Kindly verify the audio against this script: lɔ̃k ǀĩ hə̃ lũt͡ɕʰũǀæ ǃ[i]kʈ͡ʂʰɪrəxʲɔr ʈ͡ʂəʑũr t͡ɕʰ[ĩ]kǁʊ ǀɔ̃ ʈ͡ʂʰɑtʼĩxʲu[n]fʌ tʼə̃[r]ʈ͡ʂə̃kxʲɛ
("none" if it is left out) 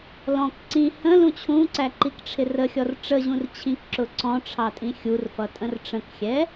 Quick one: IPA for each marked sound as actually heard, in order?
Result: i, ĩ, r, r

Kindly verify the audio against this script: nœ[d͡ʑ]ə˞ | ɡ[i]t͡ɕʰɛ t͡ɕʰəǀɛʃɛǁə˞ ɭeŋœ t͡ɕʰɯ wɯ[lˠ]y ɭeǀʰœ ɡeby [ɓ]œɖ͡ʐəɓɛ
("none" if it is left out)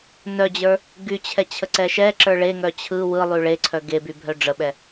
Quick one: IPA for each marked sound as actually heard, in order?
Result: d͡ʑ, y, lˠ, bʱ

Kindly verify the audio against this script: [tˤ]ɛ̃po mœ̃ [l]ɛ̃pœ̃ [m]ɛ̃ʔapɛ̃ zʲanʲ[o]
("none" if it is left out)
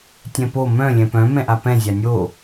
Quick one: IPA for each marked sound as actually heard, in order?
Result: tʲ, lʲ, m, o

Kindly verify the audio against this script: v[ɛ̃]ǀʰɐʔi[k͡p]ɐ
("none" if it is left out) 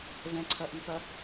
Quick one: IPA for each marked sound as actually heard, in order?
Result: ɛ̃, p

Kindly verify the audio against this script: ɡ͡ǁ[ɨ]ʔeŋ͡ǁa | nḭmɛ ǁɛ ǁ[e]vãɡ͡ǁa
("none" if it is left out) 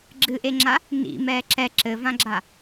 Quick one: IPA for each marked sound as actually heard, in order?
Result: ɨ, ɘ

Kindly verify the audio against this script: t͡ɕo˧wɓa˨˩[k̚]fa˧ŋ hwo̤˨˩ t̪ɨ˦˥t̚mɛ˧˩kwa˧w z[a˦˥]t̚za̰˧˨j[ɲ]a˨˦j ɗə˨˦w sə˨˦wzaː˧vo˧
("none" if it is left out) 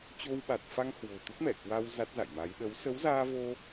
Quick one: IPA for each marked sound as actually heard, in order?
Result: t̚, a˦˥, m

